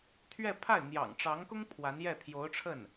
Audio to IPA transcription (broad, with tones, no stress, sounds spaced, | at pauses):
t̪ʰ ɥ ɛ˥˧ pʰ a˥˩ ɪ̯ n̪ j ɑ̰˨˩ ŋ ʈ͡ʂ ɑ˧˥ ŋ k ʊ˥ ŋ pʰ w a˧˥ n j ɛ˥˩ t̪ʰ j o˧˥ ʊ̯ ʈ͡ʂʰ ə˥˩ n